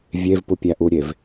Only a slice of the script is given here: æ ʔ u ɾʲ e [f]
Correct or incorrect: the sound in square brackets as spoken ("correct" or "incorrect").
incorrect